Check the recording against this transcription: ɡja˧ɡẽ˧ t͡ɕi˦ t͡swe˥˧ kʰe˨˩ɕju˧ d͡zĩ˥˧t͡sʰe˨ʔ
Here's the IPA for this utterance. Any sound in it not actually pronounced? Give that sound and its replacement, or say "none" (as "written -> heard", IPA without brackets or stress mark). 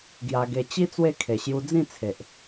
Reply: ẽ˧ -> e˧